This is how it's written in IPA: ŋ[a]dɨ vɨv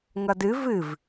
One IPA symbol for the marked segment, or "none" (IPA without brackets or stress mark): ʌ